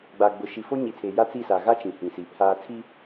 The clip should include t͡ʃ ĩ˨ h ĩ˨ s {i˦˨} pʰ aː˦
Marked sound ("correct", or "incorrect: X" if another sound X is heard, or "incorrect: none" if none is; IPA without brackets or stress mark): incorrect: i˨